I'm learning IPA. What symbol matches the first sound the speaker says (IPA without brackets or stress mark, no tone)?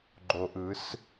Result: ɡ͡ǃ